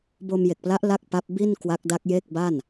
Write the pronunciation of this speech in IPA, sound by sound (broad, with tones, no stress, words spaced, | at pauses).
bo˧mje˨˩k̚pla˦˥ʔ la˥˩k̚pa˦˥p̚ bi˥˩n kwa˦˥k̚da˦˥k̚ je˥˩k̚ ba˥˩n